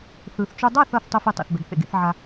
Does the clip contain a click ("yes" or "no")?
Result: no